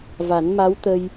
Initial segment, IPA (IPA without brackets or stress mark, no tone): v